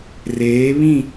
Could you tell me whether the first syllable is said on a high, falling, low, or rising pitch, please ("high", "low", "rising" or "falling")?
rising